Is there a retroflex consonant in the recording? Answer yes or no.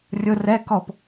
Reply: no